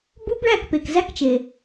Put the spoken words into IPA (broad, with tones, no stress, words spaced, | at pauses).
bu˦˥bɭæ˥˨k pe˩˧˩kzæ˦˥k t͡ʃe˩